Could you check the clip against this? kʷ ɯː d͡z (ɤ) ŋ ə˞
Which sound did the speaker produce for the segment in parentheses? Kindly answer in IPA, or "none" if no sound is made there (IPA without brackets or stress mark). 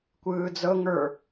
ɤ